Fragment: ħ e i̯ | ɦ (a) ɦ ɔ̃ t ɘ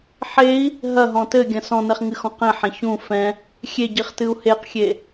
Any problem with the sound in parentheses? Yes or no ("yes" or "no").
yes